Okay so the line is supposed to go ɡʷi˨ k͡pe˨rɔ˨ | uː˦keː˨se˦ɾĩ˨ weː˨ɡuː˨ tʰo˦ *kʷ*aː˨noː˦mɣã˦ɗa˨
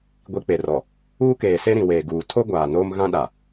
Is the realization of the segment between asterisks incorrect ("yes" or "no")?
yes